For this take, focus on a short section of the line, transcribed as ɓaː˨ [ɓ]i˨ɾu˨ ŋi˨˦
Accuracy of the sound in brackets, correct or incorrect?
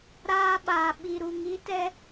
correct